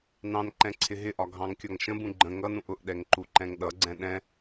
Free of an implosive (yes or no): no